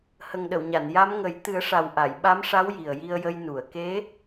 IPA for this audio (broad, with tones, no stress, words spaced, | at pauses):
hə˨˩ŋɗə˨˩˨wɲa˨˩˨n ja˧˥mŋə˨˩˦j t̪ɨ˨˩˦ə̯ʂa˨˩wʔa˨˩˨j ɓa˧˥mʂa˧˥w ji˨˩ə̯ji˧ə̯jə˧j nu˨˩˨ə̯ ke˧˥